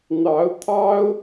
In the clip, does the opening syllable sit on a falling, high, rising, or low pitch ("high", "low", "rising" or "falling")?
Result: rising